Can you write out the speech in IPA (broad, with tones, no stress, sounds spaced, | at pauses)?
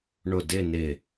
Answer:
ɳ ʊ˧˩ d ɪ˥˧ n ɪ˧˩